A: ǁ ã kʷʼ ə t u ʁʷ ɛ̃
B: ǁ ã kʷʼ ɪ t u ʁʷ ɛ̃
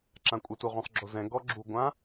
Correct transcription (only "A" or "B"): B